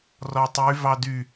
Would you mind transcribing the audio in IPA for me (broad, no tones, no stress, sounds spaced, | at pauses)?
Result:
r ɔ tˤ y v ɑ d y